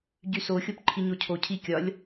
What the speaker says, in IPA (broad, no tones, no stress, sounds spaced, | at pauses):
ɟ y s o xʲ o p ǃʰ i ɲ o cʰ o cʰ i kʲ ɒ lʲ